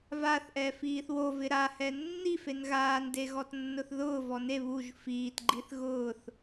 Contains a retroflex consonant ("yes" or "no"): no